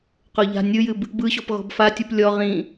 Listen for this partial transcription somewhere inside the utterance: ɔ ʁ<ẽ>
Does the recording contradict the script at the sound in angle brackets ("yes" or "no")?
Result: yes